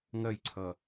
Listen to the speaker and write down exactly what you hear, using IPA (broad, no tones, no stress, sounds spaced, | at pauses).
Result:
ŋ ɜ j ǀʰ ʌ